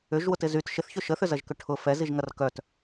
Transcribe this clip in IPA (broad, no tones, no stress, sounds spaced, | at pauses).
ʏ ʒ w ʊ t ɪ z y t ʃ ɪ θ ç ʏ ʃ ə θ ʏ z ɐ ʒ k ʏ ʈʰ ʊ f ɛ z i ʒ ŋ ɐ r k œ t